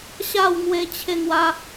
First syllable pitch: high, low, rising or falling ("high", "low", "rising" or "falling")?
falling